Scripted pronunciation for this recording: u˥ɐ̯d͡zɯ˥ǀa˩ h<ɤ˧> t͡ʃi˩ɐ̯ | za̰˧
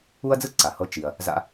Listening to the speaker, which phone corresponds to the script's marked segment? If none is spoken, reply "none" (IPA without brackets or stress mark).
ɤ˧